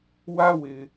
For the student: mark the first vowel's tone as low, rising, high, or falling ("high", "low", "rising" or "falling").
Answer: high